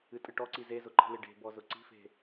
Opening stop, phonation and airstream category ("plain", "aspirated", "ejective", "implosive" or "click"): ejective